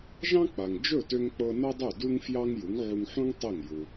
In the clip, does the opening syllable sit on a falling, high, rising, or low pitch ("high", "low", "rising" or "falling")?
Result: high